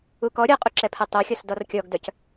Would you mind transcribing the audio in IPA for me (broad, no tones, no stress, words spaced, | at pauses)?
ukɔ ɾʲɔqʼuǁɛpʰɛ tˤœxʲɔs dɔrkʲɔɡdœc